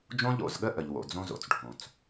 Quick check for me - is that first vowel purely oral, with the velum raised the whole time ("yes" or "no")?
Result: no